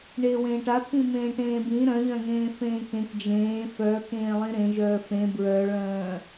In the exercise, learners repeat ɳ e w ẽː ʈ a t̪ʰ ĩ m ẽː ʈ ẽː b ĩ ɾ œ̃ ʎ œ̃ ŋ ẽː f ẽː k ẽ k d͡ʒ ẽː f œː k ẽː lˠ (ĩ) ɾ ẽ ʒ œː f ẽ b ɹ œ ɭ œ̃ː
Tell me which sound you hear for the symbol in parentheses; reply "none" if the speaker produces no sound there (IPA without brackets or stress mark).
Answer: ĩ